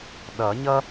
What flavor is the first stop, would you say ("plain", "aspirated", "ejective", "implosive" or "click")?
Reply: implosive